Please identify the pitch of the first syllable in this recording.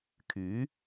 rising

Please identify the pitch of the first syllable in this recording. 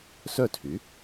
falling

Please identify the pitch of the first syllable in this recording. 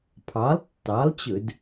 rising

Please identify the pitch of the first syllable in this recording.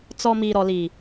low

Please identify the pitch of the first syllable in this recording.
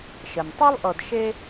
low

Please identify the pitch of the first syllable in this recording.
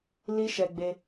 high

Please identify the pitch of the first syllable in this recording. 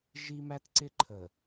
high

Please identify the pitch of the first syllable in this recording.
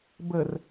low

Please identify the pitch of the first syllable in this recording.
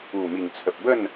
low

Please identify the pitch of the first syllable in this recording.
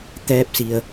rising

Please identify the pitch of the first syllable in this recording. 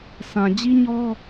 low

